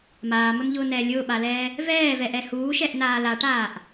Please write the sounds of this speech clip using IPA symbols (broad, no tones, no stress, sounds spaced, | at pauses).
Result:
m aː m ʊ n ʎ ʊː n ɛː lʲ ʊː ɓ a l ɛː | v ɛː v ɛ ʔ ɛ h uː ʃ ɛ ʔ n aː l a ʈ aː ʔ